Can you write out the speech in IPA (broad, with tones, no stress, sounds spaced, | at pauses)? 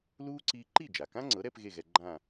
l uː˥ ǀ iː˥ ǃ i˥˩ d͡ʒ a˩ k ã˥ ŋ͡ǀ ɤ˩˥ ɾ ɛ˥ p ɣ e˥˩ ɣ ɛ˧ ɡ͡ǃ ã˥˩